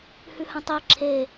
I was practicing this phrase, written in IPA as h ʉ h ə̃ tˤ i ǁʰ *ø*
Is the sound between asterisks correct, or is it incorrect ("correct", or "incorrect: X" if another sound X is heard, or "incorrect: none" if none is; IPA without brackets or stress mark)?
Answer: incorrect: e